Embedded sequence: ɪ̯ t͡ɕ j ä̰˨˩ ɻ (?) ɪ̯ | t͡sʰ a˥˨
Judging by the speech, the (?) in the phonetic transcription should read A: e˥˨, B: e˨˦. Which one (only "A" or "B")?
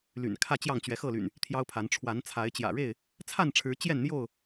A